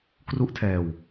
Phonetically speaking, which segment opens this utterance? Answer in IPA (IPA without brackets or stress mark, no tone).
k